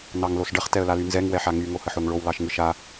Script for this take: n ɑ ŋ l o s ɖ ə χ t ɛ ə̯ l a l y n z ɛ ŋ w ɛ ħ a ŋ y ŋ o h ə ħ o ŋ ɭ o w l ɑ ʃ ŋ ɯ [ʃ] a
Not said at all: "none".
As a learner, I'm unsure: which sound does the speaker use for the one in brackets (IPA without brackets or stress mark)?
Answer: ʃ